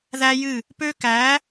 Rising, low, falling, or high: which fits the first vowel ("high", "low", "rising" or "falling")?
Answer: high